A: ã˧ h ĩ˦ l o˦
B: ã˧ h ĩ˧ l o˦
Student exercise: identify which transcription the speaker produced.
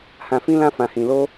B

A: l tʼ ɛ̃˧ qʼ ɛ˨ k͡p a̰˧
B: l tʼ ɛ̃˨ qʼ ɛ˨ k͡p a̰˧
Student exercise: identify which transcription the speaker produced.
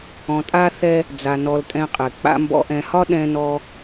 A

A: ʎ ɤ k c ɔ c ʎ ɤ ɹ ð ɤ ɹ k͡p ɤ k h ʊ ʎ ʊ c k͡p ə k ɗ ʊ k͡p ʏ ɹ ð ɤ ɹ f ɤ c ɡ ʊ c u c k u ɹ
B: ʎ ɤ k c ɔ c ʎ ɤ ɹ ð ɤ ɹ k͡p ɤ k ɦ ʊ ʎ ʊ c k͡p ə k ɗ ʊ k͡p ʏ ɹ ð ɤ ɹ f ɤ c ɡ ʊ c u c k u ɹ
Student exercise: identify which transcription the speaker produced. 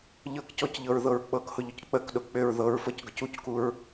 A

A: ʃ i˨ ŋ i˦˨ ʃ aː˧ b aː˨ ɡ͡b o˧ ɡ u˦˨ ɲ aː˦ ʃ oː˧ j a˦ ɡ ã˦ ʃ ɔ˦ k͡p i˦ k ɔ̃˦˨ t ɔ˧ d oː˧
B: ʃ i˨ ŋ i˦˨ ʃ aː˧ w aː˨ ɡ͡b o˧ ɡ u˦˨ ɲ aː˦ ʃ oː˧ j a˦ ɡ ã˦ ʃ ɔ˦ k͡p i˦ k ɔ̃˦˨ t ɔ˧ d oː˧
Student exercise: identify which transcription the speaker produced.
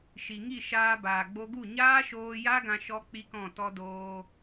A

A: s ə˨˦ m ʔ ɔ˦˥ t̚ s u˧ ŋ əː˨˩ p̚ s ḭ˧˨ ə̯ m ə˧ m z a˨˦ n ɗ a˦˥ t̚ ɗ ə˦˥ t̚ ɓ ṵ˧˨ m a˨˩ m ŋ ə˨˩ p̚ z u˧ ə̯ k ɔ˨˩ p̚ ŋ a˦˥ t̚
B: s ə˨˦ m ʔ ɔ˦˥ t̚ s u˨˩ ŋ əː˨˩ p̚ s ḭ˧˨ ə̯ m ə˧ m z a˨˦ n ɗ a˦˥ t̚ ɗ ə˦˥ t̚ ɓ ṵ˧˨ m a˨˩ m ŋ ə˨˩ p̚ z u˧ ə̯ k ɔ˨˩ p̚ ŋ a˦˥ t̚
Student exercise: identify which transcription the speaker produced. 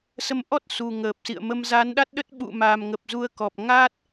B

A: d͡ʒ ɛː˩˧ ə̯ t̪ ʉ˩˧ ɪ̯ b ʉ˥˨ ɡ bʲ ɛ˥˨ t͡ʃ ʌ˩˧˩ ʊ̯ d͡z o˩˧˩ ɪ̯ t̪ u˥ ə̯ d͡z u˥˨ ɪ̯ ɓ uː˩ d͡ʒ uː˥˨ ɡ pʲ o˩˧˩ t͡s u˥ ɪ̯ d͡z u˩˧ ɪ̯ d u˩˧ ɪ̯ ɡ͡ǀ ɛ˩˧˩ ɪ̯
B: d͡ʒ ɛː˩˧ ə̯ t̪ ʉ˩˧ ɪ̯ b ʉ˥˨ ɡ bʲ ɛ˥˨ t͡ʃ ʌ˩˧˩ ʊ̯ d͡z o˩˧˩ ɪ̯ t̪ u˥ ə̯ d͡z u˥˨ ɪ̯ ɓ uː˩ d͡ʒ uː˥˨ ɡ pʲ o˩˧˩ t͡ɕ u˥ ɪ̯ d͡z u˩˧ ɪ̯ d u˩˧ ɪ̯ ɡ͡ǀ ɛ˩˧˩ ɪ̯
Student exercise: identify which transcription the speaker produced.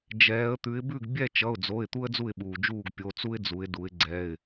A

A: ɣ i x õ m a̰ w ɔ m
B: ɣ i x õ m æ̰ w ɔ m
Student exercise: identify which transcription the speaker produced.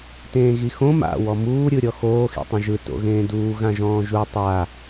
A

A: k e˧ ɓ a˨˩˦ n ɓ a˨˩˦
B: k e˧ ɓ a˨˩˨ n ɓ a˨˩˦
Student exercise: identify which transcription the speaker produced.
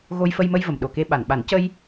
B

